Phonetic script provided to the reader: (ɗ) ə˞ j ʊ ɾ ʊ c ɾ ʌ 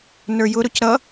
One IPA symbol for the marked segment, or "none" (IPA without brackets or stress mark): n